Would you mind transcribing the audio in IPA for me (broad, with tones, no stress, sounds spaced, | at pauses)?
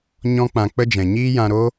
ɲ ɔ̃˦ k͡p ã˧ k͡p ə˦ d͡ʒ ɛ̃˨ ɲ iː˦ j ã˧ ɾ o˦